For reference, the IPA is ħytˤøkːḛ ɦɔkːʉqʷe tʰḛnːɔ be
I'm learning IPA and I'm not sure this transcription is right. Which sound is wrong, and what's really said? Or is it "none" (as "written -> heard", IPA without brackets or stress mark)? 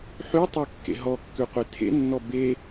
none